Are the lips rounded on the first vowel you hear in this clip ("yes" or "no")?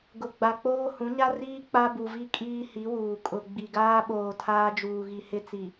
yes